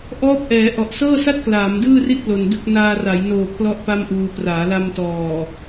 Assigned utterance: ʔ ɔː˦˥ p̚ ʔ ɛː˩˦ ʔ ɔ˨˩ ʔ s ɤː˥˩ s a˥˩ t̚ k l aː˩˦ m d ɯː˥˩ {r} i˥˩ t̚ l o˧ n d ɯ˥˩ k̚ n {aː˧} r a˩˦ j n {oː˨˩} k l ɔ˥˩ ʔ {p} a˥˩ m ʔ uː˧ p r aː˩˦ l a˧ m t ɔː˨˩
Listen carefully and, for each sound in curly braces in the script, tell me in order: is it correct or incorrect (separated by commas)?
correct, correct, correct, correct